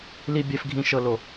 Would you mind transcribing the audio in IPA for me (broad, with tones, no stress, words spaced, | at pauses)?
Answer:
li˦bʲɛ˦fɡʱĩ˦ ʃɤ˦lo˦